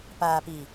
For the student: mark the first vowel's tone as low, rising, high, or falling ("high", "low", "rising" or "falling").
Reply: low